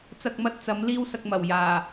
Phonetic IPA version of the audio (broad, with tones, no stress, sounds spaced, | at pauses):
t͡s ɐ˨ k̚ m ɐ˧ t̚ t͡s ɐ˨˥ m l iː˥ w s ɐ˧ k̚ m ɐ˨˩ w j aː˨˩